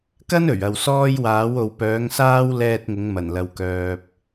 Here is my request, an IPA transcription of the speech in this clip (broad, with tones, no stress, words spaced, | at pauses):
kɐ˥n ɵ˨˩ɥɐ˨wsɔː˥j waː˨˥wo˨wpœː˨˥ŋsaː˥w lɛː˧t̚ ŋʊ˨˥ŋ mɐ˨˩nlɐ˨w kœː˨p̚